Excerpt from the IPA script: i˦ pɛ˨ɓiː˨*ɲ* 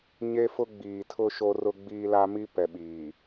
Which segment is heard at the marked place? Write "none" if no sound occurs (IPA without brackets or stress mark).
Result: none